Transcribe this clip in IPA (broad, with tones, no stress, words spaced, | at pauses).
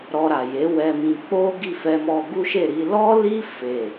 ɾɔ˧ɾa˨je˨˦ wɛ˧mĩ˧ k͡po˦ɡi˦˨ fɛ˧mɔ˧ ɡu˦ʃe˦˨ ɾi˧lɔ˦li˦ fe˦˨